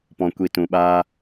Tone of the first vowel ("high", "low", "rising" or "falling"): low